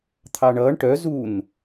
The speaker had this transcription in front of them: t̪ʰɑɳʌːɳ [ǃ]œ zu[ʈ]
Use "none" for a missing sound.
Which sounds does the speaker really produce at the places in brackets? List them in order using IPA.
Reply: ʈ, n

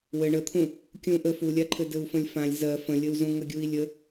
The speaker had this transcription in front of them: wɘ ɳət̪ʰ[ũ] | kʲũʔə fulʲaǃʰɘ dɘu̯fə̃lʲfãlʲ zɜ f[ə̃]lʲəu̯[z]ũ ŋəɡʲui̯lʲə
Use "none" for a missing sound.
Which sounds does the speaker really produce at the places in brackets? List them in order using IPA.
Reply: ũ, ə̃, z

